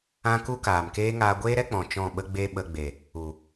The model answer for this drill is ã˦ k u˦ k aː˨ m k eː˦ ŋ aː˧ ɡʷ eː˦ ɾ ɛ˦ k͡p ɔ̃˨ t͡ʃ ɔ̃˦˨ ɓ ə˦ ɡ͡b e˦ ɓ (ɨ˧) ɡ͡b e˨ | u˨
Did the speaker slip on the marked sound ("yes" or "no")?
yes